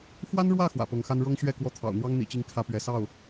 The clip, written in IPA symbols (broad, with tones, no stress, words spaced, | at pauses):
xwa˥nɻwä˥˩ xwä̰˨˩pɤ˧˥ŋxa˥n ɻɤ˥ŋɕɥɛ˥˧ kwɔ˥˩t̪ʰɑ̰˨˩ʊ̯ n̪wɑ˥ŋn̪ḭ˨˩t͡ɕi˧˥ŋ kʰä˥pɥɛ˧˥ sɑ˥˩ʊ̯